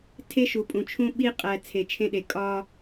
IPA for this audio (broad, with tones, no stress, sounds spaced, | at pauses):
tʰ e˦ ʃ u˨ pʼ ũ˨ t͡ʃʰ ũ˦ ɓ i˦ qʼ æ˨ t͡sʰ e˨ t͡ʃʰ ẽ˦ ɗ e˨ kʼ ɒ˦